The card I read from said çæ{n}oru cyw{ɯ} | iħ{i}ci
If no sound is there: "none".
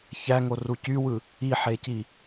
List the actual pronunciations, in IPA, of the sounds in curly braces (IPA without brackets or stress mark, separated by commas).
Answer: ŋ, ɯ, e